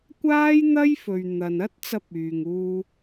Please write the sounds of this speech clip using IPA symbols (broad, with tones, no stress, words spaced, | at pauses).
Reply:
kʷaː˥jn̪ɐ˥j fɵ˨ɥn̪ɐ˨nɐ˥t̚t͡sɐ˧p̚ yː˧ŋuː˥